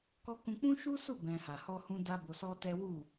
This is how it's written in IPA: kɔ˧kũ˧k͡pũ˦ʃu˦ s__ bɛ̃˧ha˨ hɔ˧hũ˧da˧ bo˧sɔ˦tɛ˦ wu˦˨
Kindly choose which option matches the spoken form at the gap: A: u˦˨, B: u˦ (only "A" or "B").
A